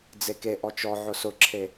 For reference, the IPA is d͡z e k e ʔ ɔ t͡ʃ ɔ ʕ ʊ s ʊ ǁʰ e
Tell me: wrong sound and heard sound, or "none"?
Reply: none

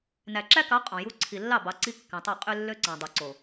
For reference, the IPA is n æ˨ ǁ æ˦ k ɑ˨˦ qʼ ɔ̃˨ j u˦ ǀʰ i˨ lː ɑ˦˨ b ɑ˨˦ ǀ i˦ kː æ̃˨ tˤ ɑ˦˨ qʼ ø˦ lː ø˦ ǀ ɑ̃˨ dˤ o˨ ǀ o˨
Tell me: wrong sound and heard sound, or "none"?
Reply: none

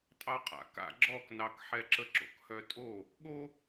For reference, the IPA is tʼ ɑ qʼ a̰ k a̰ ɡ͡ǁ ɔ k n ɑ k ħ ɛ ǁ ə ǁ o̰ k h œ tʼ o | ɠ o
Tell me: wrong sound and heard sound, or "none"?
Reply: none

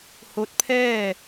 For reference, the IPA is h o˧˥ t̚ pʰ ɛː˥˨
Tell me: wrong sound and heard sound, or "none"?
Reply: none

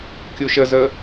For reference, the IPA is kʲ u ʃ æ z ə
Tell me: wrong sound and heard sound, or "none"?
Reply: æ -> ə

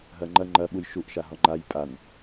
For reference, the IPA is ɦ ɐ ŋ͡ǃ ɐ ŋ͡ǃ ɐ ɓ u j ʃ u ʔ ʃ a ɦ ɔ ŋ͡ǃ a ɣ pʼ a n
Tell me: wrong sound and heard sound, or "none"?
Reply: ɣ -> j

